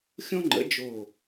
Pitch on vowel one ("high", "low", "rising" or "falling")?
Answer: high